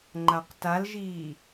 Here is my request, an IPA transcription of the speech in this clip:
ŋ͡ǃ a q t a l ʒ iː

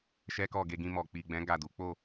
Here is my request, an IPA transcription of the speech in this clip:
ʃ ɛ˦ k ɔ˦˨ ɡ e˧ ɡ ĩ˧ m ɔ˨ k͡p i˨ ɡ͡b ɛ̃˨˦ ɡ a˦˨ d u˨˦ k͡p o˦˨

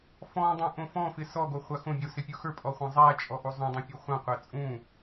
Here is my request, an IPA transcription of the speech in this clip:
f ɔ̃ dˤ ũ ʔ õ f ɔ̃ f ɪ s ɔ ɡ o χʷ a x õ bʲ o s ɪ pʲ u x ə˞ pʼ ɔ χʷ ã zˤ æ t͡ʃʼ ɔ ʔ u zˤ ũ dˤ ũ pʲ u χʷ ã qʷ æ t͡sʼ ũ

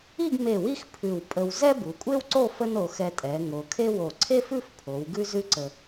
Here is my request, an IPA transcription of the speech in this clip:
i˥˧ ɡ m e˧˩ w i˥˧ x pʰ ʉ˧˩ w pʼ ə˧ w z ɛ˥ b u˩˧ kʷʼ e˥ w ǀ o˥˧ f ə˥ n o˩˧ x ɛ˧ tʼ ɛ˩˧ ŋ o˩˧ kʰ e˥ w o˧˩ ǀʰ e˥ f ʉ˥˧ f pʰ o˩˧ w ɡ ʉ˥ z ʉ˥ ǀ ə˧

